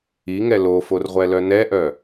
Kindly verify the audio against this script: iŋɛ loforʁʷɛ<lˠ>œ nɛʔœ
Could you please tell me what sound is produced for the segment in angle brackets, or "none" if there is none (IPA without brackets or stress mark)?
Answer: l